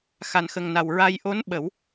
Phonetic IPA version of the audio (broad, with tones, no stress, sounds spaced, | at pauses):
x a˨˩ n x ə˨˩ ŋ n a˨˩ w ɹ a˧ j ʔ o˧˥ n ɓ ə˨˩˦ w